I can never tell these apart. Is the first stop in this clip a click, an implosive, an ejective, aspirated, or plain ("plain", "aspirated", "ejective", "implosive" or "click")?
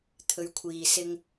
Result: aspirated